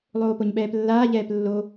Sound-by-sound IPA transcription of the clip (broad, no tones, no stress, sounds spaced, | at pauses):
lˠ oː p o ɲ ɓ ɛː p lː aː ʎ ɛː p lː o